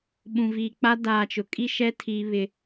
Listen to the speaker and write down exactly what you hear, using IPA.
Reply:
ɓũ˨viː˨k͡pa˦ daː˨t͡ʃʊ˨kʼi˦ʃɛ˦ tʰiː˦βɪ˦

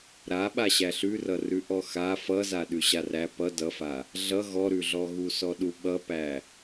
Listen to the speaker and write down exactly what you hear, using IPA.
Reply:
ɾaɓa ɕæɬʉrʌrʉ ʔɔxa fʌza ɗʉɕaræ pʌ dʌfa | ɮʌ ɣɔɾʉɮɔɣu sɔɗuɓʌpæ

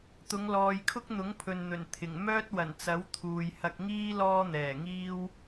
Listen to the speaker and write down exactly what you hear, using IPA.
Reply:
t̪ʊ˨˧ŋlɔː˨jkʰʊ˥k̚ n̪ʊ˨˥ŋpʰɵ˨nn̪ɵ˨˩n t̪ʰɪ˨˩ŋ mœː˥t̚wɐ˨˩nt͡sɐ˨˥w t̪ʰuː˨jhɐ˧k̚ŋiː˥ lɔː˥n̪ɛː˨˩ŋiː˥w

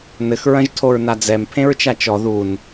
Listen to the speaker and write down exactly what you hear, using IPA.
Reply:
nɘx ɹɐ̃ʒtʰoɹnad͡zɛm pʰẽɹt͡ʃat͡ʃɔ ðun

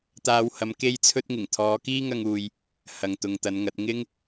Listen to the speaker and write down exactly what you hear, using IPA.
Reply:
t̪aː˧whɐ˨˧m ke˥jt͡sʰɵ˥t̚ŋɪ˨˩ŋ t̪ʰɔː˨˧kiː˥ŋɐ˧ŋuː˨j | hɐ˨ŋt̪ʊ˨ŋt̪ɐ˨˧nŋɐ˨˥t̚ ŋɪ˥ŋ

